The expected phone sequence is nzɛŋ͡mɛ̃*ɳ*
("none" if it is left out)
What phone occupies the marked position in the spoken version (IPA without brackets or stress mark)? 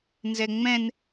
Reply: n